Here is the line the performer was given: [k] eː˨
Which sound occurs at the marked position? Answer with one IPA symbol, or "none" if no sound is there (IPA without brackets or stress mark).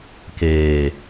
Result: k